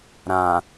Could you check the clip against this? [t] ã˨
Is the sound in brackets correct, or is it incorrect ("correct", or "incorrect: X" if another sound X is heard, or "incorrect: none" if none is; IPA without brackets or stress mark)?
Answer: incorrect: ɾ